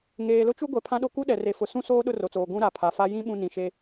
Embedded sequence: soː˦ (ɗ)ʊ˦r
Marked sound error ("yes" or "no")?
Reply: no